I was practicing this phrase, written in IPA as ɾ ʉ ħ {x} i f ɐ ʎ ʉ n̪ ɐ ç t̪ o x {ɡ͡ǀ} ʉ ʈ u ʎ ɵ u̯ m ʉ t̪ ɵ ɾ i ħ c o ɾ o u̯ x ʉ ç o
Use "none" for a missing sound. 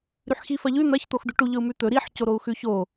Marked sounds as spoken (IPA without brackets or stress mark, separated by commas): x, d̪